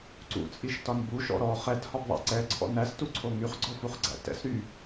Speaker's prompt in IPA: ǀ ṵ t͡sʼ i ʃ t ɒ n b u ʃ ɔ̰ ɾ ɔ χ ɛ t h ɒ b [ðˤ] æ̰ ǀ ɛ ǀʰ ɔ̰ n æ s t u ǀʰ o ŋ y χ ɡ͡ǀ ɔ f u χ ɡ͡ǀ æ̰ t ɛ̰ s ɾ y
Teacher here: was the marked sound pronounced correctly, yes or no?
yes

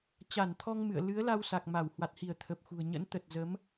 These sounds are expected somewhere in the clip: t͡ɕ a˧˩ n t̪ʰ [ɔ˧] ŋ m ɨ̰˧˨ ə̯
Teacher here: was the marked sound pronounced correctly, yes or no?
yes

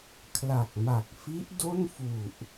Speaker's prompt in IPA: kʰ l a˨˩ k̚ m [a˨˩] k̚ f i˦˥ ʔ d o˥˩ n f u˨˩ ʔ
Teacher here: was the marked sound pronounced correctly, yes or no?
yes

